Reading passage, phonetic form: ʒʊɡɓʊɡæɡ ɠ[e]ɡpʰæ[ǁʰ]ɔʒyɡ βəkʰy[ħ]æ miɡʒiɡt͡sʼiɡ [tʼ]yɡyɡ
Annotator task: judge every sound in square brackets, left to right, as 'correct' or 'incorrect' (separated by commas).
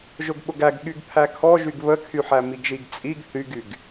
incorrect, incorrect, correct, incorrect